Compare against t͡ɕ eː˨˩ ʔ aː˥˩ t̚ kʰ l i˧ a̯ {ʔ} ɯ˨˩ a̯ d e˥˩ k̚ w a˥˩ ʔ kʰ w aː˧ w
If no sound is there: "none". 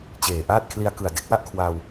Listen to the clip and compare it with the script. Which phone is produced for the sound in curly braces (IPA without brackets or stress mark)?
k